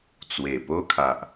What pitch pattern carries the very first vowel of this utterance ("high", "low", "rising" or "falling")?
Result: low